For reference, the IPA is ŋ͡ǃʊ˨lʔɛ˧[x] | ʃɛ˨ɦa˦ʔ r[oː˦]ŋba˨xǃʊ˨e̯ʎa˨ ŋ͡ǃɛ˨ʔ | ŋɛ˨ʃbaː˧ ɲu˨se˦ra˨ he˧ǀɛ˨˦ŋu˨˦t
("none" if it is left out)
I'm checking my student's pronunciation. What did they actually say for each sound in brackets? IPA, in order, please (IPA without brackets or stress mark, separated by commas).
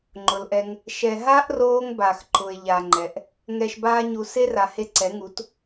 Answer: ŋ, oː˦